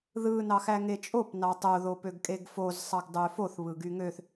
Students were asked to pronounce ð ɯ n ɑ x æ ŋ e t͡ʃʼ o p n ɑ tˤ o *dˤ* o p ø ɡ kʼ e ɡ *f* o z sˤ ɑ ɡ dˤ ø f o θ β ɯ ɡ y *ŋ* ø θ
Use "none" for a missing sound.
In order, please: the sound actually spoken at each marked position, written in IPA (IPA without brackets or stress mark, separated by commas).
ð, f, ŋ